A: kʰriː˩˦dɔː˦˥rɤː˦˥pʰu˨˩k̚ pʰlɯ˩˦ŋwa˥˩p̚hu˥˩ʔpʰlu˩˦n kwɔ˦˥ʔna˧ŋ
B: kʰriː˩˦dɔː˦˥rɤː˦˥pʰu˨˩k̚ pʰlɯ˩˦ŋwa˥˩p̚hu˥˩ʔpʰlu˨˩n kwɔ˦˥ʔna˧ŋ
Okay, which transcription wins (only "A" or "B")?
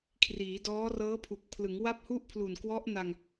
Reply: B